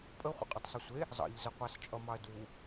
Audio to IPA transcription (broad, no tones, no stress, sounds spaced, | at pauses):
pʼ ə χʷ ḛ qʼ ɤ tˤ sˤ ʌ sʷ e | zˤ ɑ̰ ʎ z ə qʷ ɑ s t͡ʃʼ ʌ m ɑ ɐ̯ d u